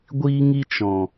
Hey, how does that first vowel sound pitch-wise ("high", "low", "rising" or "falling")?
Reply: high